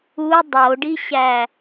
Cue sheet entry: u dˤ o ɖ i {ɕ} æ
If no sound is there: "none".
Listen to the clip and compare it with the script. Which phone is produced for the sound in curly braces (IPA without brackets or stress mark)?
ɕ